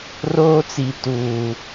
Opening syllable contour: high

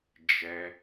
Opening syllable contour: low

